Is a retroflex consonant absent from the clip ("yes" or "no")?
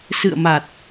yes